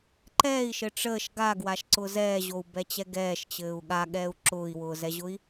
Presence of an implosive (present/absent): present